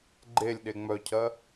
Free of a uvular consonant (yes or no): yes